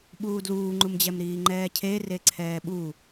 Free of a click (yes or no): no